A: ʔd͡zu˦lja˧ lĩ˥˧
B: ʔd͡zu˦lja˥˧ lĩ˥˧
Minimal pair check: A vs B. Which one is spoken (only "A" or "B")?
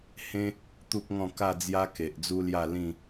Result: B